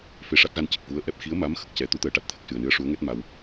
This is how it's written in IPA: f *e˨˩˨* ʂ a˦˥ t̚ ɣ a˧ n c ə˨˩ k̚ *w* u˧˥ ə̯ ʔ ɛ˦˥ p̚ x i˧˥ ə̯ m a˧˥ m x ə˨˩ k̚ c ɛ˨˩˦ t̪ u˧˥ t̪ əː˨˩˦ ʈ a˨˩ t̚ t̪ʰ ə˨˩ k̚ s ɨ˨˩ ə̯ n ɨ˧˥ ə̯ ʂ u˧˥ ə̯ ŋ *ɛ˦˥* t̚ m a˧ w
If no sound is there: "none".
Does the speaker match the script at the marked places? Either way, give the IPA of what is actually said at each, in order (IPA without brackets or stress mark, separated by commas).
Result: e˧, v, ɛ˦˥